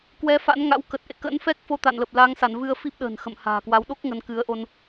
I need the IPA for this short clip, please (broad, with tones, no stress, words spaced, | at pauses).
kwɛ˨˦fa̰˧˥nŋa̰˧˥wkə˨˩t̚ ʔḛ˧˨kə̰˧˥nfɛ˦˥k̚ fo˧t̪a̰˧˨nlə˨˩p̚ la˨˦ŋsa˧˩nvɨ˧ə̯fi˦˥p̚ ɗə̤ː˨˩nxə̰˧˨mha̤ː˨˩kwa˨˦w ɗo˦˥k̚ ŋə˨˦nkɨ˨˦ə̯ ʔo˧n